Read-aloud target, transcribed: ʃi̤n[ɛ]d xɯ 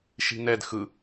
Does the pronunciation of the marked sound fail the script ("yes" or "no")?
no